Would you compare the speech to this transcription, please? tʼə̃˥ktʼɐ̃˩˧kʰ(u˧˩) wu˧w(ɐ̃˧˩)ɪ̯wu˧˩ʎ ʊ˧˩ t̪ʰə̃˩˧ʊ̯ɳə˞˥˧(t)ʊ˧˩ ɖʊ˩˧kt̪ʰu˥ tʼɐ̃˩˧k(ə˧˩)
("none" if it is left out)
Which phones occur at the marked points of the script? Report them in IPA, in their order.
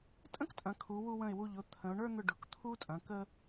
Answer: u˩˧, ə̃˧˩, n̪, ə˧

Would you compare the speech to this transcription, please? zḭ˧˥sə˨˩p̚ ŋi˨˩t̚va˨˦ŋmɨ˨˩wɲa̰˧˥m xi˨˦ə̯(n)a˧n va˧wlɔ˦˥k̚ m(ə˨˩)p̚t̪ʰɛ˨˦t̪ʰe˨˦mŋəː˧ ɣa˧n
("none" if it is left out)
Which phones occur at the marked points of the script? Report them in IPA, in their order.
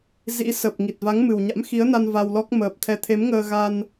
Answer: n, əː˨˩

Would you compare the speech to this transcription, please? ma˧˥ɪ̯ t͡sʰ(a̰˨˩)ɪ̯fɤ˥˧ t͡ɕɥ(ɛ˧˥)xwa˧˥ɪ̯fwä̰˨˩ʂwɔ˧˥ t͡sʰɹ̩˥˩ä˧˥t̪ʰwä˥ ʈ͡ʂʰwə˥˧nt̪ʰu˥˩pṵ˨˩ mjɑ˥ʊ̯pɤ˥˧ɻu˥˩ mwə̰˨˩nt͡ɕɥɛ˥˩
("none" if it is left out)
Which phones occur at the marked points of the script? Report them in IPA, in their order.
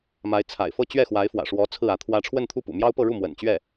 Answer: a̰˨˩, ɛ˥˩

